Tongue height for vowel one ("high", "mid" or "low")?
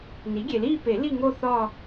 high